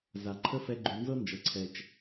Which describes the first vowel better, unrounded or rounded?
unrounded